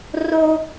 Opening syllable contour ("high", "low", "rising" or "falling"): high